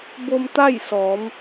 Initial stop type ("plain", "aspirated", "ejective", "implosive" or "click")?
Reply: plain